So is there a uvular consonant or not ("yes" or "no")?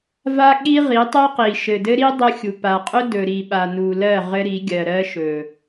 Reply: yes